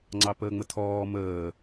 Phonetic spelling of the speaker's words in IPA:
ŋ͡ǀ ɑ p əː ŋ͡m ə tʰ ɔː m əː

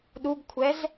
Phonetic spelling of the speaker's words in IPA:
ɗ u ɡ kʷʰ ɛ z

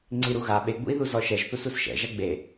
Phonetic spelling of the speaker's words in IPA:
ŋ͡ǀ i ɾ u ɣ a ɓ e ɡ͡b ṵ i̯ ð u z ɔ ʃ ɛ ʒ θ u s u s ʃ ɛ̰ ʒ a ɡ͡b e

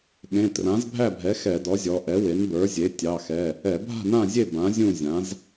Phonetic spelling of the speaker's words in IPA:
ɠ ẽ˩˧˩ t r ã˩˥ z bʱ æ˥˨ bʱ ɛ˩˥ x ɛ˧˩˧ d ɔ˩˥ zʲ ɔ˩˧ ʔ ɛ˩˥ w e˩˥ n b ə˞˩˥ zʲ e˩˥ tʲ ɑ˩˧˩ x ɛ˩˧˩ | ɛ˧˩˧ bʱ a̤˥˨ n ã˥˨ zʲ e˥˨ b ã˩˥ zʲ ũ˥˨ zʲ ã˩˥ z

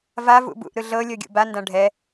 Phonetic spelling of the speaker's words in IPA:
v a v ṵ b ṵ ʔ ɾ ɯ ɮ ɤ lʲ ɤ ɡʲ ṵ b a n d ã ɖʱ ɛ

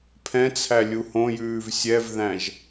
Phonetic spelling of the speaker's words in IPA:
pʰ ɛ̃ t͡sʰ æ lʲ u h õ j ʉː v sʲ ɛ v ð æ̃ ʒ

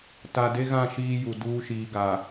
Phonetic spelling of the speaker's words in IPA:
t a˨ d e˦ ɣ ã˦˨ ʃ iː˦ j u˨ d uː˦ ʃ iː˨ ɡ a˨

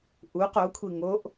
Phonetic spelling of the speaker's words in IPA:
ʔ u q o kʷʰ i ŋ o ʔ

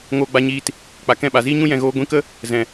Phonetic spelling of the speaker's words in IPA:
ŋ oː˧ ɡ͡b a˧ ɲ iː˧ t | k͡p a˨ k ɛ̃˦˨ ɓ a˨ z iː˦ ɲ ũ˦ j ɛ̃˨ ɣ oː˧ ɡʷ ĩ˧ k ə˦ | z ɛ̃˨

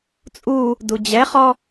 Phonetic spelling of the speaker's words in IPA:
t͡sʼ u | d u d͡ʑ ɛ χ ɔ

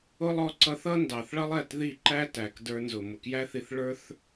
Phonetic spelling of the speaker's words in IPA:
ʊ˦ lˠ ɔ˧ ǀ ʌ˧ θ ʌ˦ n d ɑ˨ θ ɭ ʌ˦ lˠ ɛ˦˨ t ð i˦˨ ǃ æ˦ t æ˨ k d ə˞˧ n z ʊ˨ m ʊ˨ k j æ˦ θ i˧ θ ɭ ə˞˦ θ

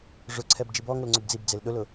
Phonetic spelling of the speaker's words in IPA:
ʐ ʊ ǀʰ ɛ b d͡ʒ i b ɔ ŋ ʊ l ŋ͡ǀ ʊ b d͡z i b d͡z e l ɗ ʊ l ʊ

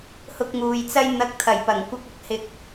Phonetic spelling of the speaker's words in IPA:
h ʊ˧ k̚ ŋ uː˨ j t͡s ɐ˥ j n̪ ɐ˧ k̚ t̪ʰ ɐ˨˩ j p ɐ˨˩ ŋ kʷ ɐ˧ k̚ ɐ˨ k̚ h ɪ˨ k̚

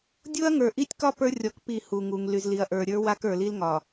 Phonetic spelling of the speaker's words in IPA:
dʲ o˦ ɐ̯ ŋ ə˞˨ ʔ i˦ tʲ k ɒ˦ p ə˞˦ rʲ ɔ˨˦ k p i˦˨ h u˨ ŋ u˨ ŋ l y˨ z l i˨ ɐ̯ ʔ ə˞˨ ɾʲ ə˞˦ w a˦ k ə˞˨ l i˦ l ŋ ɒ˨

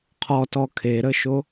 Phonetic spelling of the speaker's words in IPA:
qʰ ɔ t ɔ kʰ e ɾ ə ʃ o

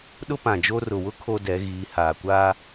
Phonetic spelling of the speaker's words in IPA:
ɗ ʊ˦ p ã˨ d͡ʒ o˦ r ʊ˨ w ʊ˦ kʰ o˦ d ɛ˨˦ ɣ iː˨˦ h aː˨ kʷ aː˦

